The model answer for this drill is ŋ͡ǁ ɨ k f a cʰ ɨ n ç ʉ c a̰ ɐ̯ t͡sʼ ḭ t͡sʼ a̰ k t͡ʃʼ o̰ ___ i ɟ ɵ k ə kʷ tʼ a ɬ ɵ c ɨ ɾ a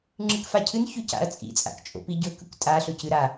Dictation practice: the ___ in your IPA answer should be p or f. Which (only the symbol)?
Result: p